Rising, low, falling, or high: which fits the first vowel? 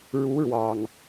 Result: rising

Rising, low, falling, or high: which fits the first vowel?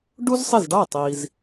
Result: high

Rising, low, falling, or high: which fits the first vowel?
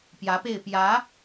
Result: rising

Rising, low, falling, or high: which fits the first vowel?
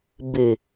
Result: low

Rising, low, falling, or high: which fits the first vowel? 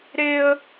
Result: high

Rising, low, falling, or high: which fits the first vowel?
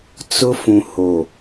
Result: high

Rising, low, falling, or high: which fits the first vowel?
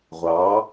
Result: rising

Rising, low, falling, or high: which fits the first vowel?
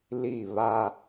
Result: falling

